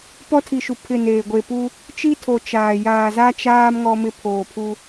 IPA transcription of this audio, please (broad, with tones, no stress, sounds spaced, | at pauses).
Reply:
p ɔ˦ tʰ i˨ ʃ u˨ pʰ ɪ˦˨ n eː˨ ɡʷ e˨ p u˦ | t͡ʃ i˦ tʰ o˨ t͡ʃ aː˨ j aː˨ z a˦ t͡ʃ aː˦ m ŋ ɔ˦ m ɪ˦ pʰ oː˨ pʰ u˦